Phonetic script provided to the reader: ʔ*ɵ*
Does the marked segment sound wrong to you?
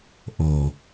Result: yes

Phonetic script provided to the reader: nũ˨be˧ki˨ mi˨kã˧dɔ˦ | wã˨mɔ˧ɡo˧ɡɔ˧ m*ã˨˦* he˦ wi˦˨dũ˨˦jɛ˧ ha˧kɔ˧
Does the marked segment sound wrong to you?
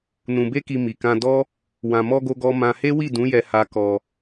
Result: yes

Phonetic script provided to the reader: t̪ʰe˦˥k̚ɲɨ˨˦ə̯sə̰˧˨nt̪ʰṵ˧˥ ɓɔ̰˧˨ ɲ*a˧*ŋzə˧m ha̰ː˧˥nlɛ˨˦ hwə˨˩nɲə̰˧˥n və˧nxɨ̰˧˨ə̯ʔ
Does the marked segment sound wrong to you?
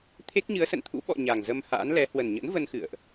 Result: yes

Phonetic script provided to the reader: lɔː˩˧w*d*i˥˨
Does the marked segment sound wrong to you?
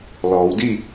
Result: no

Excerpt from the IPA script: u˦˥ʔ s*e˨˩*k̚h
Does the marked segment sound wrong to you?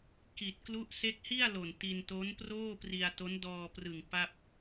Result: yes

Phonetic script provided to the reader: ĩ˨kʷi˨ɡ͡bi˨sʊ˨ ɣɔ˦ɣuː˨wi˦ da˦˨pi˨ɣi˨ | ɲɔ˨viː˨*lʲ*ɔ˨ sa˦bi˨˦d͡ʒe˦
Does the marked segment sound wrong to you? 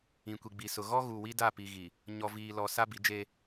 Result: yes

